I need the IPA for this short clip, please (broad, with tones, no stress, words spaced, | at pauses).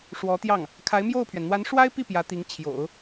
ʂwɔ˧˥t̪jɑ˥˩ŋ | kʰa˧˥ɪ̯mjo˥˩ʊ̯pʰɥɛ˩n n̪wa˧˥nʂwa˥ɪ̯pi˥˩ pjä˧˥t̪i˧˥ŋ t͡ɕʰjo̰˨˩˦ʊ̯